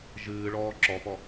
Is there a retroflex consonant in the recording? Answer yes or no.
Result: yes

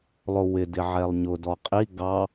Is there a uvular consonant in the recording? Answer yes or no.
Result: yes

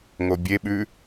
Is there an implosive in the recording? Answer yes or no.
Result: yes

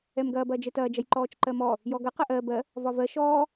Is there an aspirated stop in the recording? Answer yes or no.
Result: no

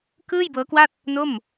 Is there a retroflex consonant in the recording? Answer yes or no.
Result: no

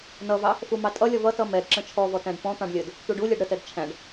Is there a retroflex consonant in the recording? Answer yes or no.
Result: yes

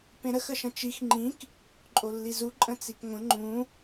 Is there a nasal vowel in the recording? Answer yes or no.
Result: yes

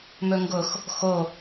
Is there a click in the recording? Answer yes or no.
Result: no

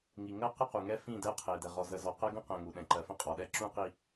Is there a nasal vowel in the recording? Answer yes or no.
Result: yes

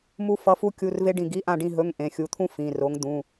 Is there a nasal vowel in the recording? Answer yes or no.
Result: yes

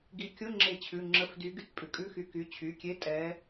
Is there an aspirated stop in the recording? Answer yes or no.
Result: yes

